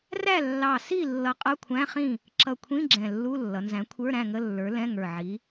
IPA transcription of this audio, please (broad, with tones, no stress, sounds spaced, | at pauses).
r æ˥˨ lː ɑ˧˩ s i˥˨ lː ʌ˨˥ qʼ ʌ˧˥˧ kʷʰ æ̃˧˥˧ χ ĩ˥˨ | ǁ ʌ˧˩ kʷʰ ĩ˧˥˧ ɡ͡ǁ ɛ̃˧˩ lː u˧˥˧ lː ʌ˩˧ n z æ̃˨˥ kʷʰ ə˞˧˥˧ ɾ æ̃˥˨ ŋ ə˧˥˧ lː ə˞˨˥ l ɛ̃˧˥˧ ŋ ə˞˧˩ ʕ i˨˥